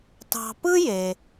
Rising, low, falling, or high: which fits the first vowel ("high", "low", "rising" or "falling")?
low